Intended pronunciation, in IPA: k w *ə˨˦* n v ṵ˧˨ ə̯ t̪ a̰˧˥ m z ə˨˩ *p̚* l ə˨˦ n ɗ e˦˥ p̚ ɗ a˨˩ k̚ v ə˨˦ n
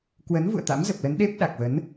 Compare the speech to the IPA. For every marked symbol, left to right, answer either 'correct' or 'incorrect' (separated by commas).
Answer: correct, correct